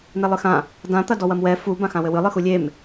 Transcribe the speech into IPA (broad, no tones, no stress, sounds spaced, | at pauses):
n̪ e lˠ ɨ x ã | d ã t̪ ɐ d ɔ w ɐ m w ɛ f u b ã x ã w ɘ w ɨ lˠ ɨ x u lʲ e m